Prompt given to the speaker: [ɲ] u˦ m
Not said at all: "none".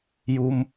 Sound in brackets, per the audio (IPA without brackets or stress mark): j